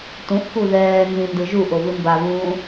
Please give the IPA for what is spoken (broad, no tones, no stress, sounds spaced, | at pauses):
t ũ ʔ k u ð ɛː n z ĩ n d ɯ ʒ u ʔ o v ɯ m b a v ũː